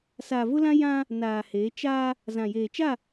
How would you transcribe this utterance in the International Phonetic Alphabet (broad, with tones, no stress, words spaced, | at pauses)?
saː˨vʊ˦lã˦ jã˦ | naː˨heː˨˦ t͡ʃaː˦ | zã˨jeː˨t͡ʃa˦˨